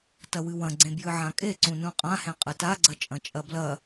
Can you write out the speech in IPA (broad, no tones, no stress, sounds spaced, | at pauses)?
t ɐ w ɨ w ɐ̃ ɡ͡ǀ ẽ b j ɨ ʕ ã kʼ e ǀ ũ n ũ qʼ ã h ẽ qʼ ɨ t a ɡ͡ǀ ɐ t͡ʃʼ ɐ̃ t͡ʃʼ ɐ b l ɐ